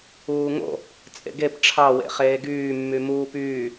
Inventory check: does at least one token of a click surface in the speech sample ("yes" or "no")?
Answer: no